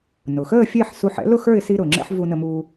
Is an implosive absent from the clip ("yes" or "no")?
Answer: yes